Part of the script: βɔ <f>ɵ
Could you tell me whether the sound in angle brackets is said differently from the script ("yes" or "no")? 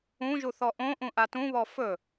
no